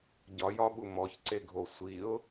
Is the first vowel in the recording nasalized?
no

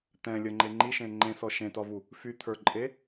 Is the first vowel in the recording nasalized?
yes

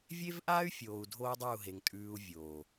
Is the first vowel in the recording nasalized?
no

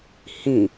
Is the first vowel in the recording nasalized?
yes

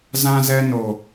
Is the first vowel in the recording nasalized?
yes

